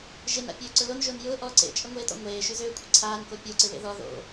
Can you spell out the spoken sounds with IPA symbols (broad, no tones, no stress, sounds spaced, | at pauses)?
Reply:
ʒ e n a̰ pʲ øː ǀ ʊ l o n ʒ ʊː n j ʊː ʔ ɔː ǀ ḛ t͡ʃʼ ə ŋʷ eː t ɔ̰ ŋʷ eː ʃ y z øː kʷʼ ɪ ǀʰ aː n k o pʲ o ǀ ɪ β ḛ ð ɔ ð o̰